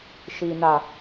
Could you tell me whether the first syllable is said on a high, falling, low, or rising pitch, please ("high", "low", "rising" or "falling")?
low